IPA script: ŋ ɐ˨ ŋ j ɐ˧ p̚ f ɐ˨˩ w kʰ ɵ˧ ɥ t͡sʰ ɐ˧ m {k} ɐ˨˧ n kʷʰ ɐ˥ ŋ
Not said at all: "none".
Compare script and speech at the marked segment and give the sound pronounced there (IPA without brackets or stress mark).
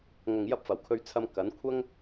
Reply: k